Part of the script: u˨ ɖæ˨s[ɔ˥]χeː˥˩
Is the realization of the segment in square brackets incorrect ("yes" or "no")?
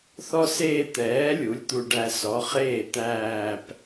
yes